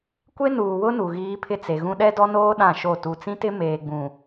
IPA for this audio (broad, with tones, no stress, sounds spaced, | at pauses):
kʷ e˦ n uː˨ w ʊ˦ n u˨ ɣ iː˦ pʰ ɪ˦ t͡s e˨ ɣ ũ˦ ɗ ɛ˦ d ɔ˦ n oː˦ ɗ ã˦˨ ʃ o˦˨ t u˨ t͡s ĩ˦ t ɪ˦ m eː˨ ɡ͡b ũ˨